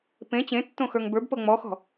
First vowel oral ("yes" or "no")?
no